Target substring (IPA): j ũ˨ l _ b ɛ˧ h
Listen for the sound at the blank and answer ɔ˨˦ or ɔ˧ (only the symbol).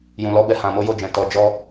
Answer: ɔ˨˦